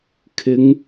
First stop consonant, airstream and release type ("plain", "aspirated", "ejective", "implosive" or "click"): aspirated